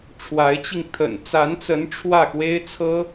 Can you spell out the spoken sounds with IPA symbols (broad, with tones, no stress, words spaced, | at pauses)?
ʈ͡ʂʰwa˧˥ɪ̯t͡ɕi˧ŋ t̪ʰə̰˨˩nt͡sa˧˥nt͡sə˧˥n ʈ͡ʂʰwä˥˩xwe˥ɪ̯ t͡sʰɤ˥